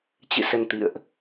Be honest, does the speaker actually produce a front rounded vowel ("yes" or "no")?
no